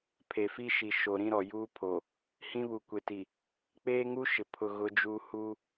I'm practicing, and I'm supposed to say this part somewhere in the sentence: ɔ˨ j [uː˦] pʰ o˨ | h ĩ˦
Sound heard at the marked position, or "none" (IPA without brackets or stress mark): uː˦